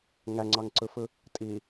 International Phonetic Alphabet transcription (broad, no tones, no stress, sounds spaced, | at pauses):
ŋ æ ŋ͡ǀ ɑ ŋ ǀ ɯ f ɯ | tʼ i